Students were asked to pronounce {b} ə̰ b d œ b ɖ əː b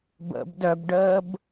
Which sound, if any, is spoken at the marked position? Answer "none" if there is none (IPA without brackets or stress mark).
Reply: b